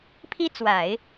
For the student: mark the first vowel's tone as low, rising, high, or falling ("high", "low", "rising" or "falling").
high